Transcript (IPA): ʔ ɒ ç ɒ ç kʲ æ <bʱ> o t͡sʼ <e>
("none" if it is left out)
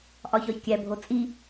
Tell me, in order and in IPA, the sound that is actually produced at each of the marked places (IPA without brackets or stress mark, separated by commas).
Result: bʱ, i